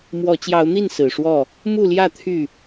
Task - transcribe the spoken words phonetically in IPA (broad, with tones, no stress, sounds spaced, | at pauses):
m w ɔ˨˦ t͡ɕ j ɑ˨˦ ʊ̯ n̪ i˥˨ n s ɹ̩˨˩ ʂ w ɔ˥˨ | m u˥˨ l j ä˥˨ t̪ʰ y˥˨